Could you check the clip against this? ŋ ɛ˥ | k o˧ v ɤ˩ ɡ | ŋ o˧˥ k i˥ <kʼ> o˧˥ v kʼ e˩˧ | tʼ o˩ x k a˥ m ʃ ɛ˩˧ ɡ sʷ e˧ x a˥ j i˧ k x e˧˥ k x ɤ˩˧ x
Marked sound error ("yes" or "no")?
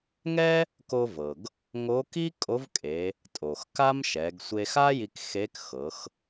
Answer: no